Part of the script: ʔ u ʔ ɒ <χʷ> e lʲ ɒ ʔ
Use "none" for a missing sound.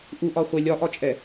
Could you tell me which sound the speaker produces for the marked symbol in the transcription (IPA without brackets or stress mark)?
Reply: χʷ